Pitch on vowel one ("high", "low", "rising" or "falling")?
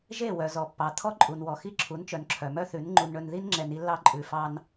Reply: falling